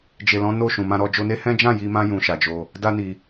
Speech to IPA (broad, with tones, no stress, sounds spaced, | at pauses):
d͡ʒ e˨ l ɔ̃˨˦ n o˦˨ ʃ ũ˨ m ã˧ ɾ ɔ˧ d͡ʒ o˧ n e˦ h ɛ̃˦ d͡ʒ ã˦˨ j i˧ m ã˧ j ũ˨ ʃ a˨ d͡ʒ o˧ | d a˦ n i˧